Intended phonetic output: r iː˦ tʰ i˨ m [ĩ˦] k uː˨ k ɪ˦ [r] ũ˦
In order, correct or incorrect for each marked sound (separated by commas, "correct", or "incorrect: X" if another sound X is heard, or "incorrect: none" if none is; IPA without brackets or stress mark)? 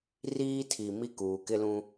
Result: incorrect: i˦, incorrect: l